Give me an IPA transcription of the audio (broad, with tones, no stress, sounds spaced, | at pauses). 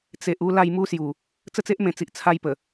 t͡s e˨ ʔ u˥˧ l a˥˧ j m u˦ s j u˨˩ | t͡s ə˥˧ t͡s e˦ ʔ m ẽ˨˩ t͡s i˨ ʔ t͡sʰ a˦ j p ə˨˩